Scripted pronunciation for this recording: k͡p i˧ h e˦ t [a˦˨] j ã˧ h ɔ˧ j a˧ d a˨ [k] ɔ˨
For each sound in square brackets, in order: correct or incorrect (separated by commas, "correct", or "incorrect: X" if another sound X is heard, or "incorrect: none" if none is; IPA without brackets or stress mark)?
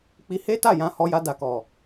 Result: correct, correct